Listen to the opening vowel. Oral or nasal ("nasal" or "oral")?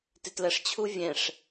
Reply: oral